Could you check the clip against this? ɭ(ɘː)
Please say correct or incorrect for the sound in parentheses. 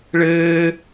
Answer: correct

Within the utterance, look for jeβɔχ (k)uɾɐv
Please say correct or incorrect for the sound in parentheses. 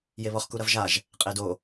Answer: correct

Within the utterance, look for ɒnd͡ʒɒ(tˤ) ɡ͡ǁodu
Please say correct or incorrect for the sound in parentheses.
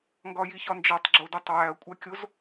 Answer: correct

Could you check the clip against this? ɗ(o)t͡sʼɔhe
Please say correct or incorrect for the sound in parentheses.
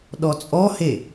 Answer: incorrect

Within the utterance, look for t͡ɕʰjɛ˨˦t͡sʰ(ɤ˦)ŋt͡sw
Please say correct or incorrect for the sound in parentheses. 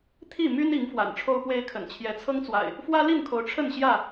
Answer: correct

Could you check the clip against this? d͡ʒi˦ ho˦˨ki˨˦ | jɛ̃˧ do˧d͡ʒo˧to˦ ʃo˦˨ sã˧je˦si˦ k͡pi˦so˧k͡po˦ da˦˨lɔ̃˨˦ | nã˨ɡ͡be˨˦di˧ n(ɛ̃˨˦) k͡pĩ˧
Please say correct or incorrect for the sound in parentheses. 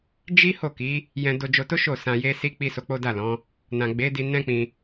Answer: incorrect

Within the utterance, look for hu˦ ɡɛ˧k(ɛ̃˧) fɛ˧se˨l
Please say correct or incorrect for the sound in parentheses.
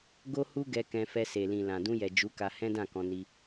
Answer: correct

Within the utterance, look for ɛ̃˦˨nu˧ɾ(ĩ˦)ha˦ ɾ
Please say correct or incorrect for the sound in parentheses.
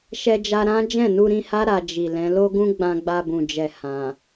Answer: incorrect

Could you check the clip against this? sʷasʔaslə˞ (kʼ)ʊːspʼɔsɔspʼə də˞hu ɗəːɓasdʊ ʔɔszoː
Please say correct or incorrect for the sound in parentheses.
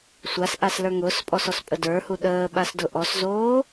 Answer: incorrect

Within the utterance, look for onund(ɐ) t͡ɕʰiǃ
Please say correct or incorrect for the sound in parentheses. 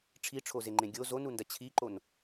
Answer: correct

